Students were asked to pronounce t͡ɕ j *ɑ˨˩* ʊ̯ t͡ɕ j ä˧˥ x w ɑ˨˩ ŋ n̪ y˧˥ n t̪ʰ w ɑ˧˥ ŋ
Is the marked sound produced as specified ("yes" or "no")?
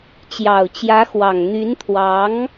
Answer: yes